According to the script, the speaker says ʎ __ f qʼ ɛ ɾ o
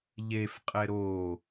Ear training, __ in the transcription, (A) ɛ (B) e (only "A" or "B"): B